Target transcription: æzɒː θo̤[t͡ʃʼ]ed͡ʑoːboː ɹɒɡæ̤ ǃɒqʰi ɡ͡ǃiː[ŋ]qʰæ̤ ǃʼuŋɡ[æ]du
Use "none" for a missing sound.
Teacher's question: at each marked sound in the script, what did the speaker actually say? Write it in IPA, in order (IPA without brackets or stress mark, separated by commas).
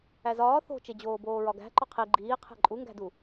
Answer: t͡ʃ, none, æ̤